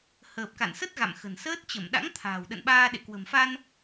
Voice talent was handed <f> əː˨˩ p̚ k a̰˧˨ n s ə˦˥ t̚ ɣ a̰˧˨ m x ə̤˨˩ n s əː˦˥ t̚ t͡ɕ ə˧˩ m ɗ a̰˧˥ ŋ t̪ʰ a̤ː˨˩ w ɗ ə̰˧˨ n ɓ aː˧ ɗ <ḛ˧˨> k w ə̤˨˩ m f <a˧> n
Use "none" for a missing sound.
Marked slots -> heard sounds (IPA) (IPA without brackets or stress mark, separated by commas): h, ḛ˧˨, a˧